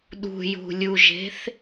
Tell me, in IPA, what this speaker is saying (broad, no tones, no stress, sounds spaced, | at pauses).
ɗ ṳ j ṳ lʲ u ʒ e̤ θ